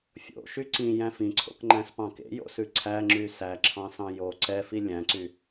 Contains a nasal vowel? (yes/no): yes